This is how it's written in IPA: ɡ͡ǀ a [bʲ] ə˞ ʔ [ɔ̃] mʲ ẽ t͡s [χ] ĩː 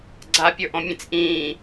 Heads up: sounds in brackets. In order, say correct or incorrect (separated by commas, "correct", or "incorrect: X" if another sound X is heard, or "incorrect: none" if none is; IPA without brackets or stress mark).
incorrect: pʲ, correct, incorrect: ʔ